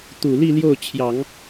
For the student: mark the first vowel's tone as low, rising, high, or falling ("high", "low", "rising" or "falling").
low